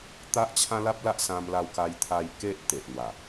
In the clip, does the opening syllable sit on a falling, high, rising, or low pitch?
high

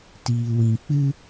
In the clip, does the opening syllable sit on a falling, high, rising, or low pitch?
low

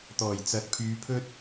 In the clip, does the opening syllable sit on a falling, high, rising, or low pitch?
low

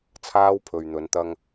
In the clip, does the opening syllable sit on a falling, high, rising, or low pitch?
high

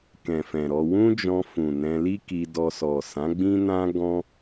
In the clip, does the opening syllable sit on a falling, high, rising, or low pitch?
low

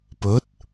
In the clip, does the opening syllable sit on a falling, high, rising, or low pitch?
rising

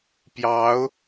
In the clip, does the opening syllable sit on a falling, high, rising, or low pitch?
rising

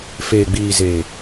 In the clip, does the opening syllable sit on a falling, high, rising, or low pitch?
low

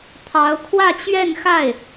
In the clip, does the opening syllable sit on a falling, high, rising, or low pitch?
rising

